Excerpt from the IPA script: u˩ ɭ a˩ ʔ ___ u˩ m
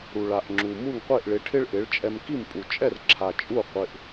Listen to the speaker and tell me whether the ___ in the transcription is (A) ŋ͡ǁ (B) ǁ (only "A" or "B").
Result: A